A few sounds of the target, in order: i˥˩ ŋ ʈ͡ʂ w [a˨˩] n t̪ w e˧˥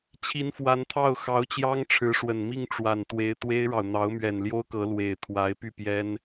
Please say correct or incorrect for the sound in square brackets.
correct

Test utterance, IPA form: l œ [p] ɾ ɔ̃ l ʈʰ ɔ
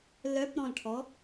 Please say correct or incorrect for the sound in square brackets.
correct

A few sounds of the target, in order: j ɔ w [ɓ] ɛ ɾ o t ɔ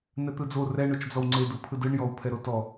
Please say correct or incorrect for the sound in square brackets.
incorrect: pʰ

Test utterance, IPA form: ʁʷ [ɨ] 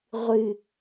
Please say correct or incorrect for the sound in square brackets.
correct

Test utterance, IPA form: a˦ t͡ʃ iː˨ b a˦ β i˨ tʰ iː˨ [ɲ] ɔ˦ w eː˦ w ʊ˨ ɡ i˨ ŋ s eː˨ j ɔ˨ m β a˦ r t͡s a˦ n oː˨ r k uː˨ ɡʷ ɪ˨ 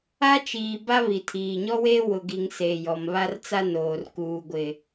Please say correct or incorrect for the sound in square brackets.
correct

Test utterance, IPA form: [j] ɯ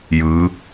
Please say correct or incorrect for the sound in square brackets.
correct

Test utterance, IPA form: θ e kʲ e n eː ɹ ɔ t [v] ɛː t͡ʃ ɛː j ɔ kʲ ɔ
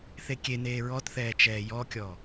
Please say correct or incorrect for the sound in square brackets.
incorrect: θ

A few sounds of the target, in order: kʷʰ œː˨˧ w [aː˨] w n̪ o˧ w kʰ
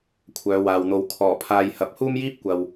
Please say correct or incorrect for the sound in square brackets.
correct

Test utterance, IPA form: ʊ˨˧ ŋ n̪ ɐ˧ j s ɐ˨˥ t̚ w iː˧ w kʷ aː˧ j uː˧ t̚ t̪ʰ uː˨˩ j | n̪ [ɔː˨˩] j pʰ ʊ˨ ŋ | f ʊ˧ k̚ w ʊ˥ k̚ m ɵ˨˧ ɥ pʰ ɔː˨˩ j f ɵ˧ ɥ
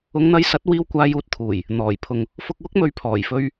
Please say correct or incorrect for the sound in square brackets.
correct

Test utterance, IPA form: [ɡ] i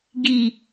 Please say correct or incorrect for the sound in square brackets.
correct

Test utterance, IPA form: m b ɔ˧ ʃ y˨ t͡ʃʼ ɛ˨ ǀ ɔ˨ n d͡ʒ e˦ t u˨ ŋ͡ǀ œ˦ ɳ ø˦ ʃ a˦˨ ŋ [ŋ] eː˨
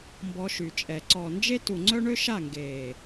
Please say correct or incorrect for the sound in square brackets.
incorrect: ɡ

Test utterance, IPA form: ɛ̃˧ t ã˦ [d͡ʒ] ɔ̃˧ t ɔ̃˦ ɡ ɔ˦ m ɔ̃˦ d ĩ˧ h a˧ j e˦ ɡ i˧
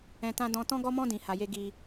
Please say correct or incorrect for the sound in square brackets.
incorrect: d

